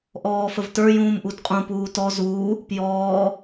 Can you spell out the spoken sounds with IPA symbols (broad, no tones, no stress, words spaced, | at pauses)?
ʔɔːfəvtə˞jũːm ʔudqʼũpuː tɔ zuː | pjɔː